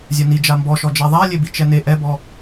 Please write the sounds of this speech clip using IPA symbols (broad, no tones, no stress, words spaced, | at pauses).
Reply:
zʲœni d͡ʒambɔʃɔ d͡ʒɛðˤalʲebi t͡ʃɛne ʔɛbɔ